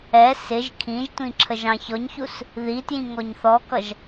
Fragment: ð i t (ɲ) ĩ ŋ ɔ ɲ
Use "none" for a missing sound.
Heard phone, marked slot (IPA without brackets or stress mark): j